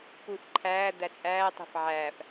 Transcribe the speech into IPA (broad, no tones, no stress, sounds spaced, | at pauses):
p u f ǃʰ æː d̪ æ t͡sʼ æː tˤ e̤ f ʕ æː f